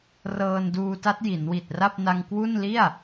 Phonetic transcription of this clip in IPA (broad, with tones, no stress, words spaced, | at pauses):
rɤː˧nduː˧ta˦˥t̚ ji˩˦nwi˨˩t̚ra˥˩p̚ na˧ŋkwu˥˩n li˥˩a̯